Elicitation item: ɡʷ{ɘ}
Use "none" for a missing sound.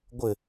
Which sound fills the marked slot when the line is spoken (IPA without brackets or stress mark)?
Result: ɘ